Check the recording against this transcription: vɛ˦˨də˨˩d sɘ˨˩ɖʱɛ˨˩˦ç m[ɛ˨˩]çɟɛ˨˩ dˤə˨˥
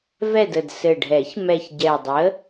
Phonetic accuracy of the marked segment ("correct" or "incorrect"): correct